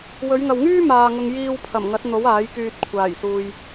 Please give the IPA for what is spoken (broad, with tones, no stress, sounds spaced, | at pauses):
w ɵ˨˧ ɥ ŋ ɐ˨ w ŋ yː˥ m aː˨ ŋ ʊ˨ ŋ j iː˨ w pʰ ɐ˨˩ m ŋ ɐ˨˥ t̚ n̪ o˨˥ w aː˨˥ j k yː˧ t̚ kʷʰ aː˨˩ j s uː˨ j